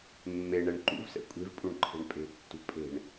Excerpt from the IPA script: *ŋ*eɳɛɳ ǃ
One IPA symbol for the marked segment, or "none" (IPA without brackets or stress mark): mː